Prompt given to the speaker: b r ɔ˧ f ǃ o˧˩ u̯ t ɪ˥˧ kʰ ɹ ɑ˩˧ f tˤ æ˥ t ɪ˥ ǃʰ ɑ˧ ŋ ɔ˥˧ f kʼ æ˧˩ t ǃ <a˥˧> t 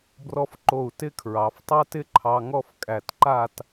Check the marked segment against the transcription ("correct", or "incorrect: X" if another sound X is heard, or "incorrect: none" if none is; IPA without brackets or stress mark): correct